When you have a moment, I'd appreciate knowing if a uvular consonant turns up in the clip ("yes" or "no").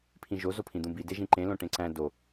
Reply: no